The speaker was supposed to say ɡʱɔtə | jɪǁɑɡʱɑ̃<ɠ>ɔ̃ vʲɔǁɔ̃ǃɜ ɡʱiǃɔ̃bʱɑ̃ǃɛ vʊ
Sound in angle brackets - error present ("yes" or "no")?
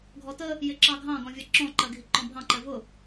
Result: yes